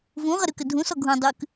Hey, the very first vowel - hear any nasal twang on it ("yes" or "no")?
yes